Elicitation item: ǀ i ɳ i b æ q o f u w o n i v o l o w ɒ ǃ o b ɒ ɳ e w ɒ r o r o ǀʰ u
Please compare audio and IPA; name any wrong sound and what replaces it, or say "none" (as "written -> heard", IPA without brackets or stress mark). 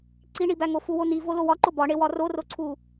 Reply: q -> ŋ